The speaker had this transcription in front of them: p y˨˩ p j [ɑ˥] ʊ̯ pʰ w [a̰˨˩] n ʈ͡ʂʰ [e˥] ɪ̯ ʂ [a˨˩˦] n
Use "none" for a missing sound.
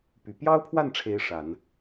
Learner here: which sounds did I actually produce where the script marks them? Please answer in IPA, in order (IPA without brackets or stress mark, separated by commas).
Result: ɑ˥, a˥˩, e˥, a˨˩˦